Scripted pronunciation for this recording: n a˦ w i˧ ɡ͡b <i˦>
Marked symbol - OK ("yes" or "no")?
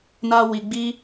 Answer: yes